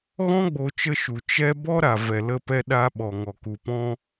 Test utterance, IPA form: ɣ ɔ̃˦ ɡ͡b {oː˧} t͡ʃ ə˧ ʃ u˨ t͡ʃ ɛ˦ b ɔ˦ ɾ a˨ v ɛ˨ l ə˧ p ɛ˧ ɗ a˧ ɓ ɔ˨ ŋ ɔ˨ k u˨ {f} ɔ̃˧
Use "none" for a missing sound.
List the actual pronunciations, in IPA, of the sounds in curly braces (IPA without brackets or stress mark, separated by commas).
o˧, p